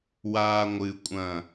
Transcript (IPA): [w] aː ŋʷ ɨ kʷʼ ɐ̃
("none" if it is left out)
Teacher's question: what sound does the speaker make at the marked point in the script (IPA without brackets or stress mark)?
w